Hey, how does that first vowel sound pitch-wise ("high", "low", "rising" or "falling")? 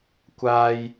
low